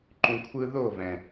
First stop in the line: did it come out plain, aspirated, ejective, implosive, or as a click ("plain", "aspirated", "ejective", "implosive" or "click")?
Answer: click